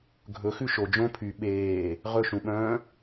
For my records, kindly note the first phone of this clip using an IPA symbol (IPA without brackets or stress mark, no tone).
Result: ɡʱ